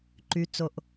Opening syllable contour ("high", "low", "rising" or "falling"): low